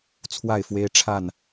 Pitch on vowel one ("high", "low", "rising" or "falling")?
falling